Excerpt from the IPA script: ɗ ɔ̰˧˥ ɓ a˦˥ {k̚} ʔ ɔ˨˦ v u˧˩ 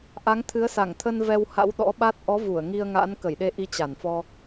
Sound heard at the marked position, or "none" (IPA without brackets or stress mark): t̚